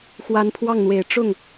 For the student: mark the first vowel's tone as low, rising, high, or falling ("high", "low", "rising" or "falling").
rising